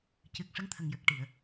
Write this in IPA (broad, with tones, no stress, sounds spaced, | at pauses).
c ɨ˨˩ k̚ ʂ ə˧˥ ŋ t̪ʰ ə˨˩ ŋ j ə˨˩ k̚ ʈ i˨˩˨ ə̯